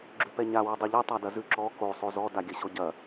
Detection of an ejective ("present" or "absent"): absent